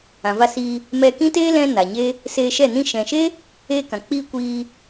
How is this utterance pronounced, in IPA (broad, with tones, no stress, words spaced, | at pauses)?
ã˨va˧siː˧ | mɛ˧ kĩ˦teː˦ lɛ̃˦ na˨ɲe˦ | seː˧ʃɛ˦˨ nĩ˧ʃɛ̃˨ʃe˦ | eː˧kã˨k͡piː˧ kʷiː˧